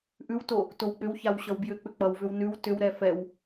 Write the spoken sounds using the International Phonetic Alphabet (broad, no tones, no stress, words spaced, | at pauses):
ʔʉwto | towk͡pʏwçaw ɕʌwbjʏk͡pʏ k͡pʌwvʏw nʉw tʏwɾɛ fɛw